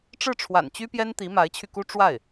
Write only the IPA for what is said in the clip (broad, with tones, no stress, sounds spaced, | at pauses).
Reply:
ʈ͡ʂ ɻ̩˥˩ ʈ͡ʂʰ w a̰˨˩ n t͡ɕ y˥ p j ɛ˥ n t̪ i˧˥ m a˧˥ ɪ̯ t͡ɕʰ y˧ k u˥ ʈ͡ʂ w a˥˩ ɪ̯